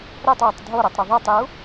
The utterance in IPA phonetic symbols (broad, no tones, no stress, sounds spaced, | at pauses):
ɾ ɛ tˤ j o tˤ dʱ o ɾ o tˤ ɾ o ðˤ ɛ tˤ j u